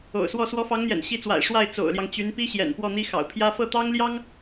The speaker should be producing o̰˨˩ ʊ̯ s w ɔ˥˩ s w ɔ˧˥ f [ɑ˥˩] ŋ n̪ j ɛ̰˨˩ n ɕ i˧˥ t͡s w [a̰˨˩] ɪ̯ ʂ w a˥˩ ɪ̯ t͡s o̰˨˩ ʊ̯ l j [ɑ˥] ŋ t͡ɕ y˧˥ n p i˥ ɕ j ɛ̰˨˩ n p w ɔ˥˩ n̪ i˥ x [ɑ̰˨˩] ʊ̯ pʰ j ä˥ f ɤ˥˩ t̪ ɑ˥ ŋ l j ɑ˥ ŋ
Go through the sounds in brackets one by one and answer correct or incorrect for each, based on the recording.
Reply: incorrect: ɑ˧˥, correct, incorrect: ɑ˦, correct

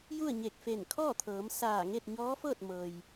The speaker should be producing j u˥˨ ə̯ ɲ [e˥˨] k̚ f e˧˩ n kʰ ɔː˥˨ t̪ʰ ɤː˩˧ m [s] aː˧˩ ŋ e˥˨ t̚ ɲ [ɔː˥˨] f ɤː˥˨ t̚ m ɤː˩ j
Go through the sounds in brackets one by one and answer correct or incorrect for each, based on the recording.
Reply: incorrect: e˧˩, correct, incorrect: ɔː˧˥

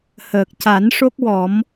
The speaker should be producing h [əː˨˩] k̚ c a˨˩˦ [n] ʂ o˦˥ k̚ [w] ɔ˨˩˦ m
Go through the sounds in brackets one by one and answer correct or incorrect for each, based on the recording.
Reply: correct, correct, correct

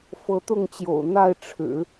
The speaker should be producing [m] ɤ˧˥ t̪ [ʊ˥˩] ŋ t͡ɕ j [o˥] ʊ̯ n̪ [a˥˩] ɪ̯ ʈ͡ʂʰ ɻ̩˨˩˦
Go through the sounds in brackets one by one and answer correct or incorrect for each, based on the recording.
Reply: incorrect: f, correct, incorrect: o̰˨˩, correct

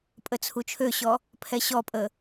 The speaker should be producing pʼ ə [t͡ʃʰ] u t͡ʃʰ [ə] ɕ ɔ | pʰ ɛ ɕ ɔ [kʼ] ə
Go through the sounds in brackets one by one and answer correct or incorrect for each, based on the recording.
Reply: incorrect: t͡sʰ, incorrect: ø, incorrect: pʼ

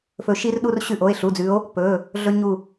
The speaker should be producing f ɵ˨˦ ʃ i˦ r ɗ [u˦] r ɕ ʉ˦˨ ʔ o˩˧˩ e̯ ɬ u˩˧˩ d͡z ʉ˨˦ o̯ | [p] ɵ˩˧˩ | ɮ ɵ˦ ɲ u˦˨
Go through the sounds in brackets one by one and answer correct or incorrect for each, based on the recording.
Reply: correct, correct

